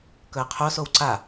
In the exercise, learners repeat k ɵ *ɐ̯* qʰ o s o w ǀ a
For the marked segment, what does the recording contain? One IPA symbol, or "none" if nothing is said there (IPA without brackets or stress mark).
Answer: ɐ̯